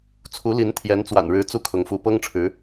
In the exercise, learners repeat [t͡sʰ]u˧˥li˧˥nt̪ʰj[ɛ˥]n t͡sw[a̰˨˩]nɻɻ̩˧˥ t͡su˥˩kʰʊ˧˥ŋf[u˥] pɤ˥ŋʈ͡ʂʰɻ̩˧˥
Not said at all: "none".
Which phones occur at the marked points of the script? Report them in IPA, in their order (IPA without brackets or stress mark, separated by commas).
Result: t͡sʰ, ɛ˧˥, a̰˨˩, u˧˥